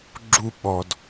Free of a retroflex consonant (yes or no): yes